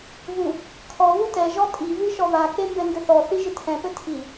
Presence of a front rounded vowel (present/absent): absent